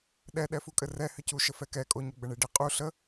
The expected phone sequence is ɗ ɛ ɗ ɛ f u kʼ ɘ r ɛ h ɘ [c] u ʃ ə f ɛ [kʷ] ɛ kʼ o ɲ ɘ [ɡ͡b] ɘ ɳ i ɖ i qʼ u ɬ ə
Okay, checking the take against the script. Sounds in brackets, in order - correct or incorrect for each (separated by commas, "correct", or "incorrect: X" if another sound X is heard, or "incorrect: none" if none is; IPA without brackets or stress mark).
correct, incorrect: k, correct